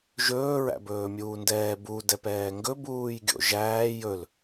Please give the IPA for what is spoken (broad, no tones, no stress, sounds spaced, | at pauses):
ʒ ɵː ɹ æ̰ b ɵː mʲ uː n d ɛː b u d ɛ p ɛː ŋ ɡ ɵ b uː j ɡʲ o̰ ʒ æː j ɵ l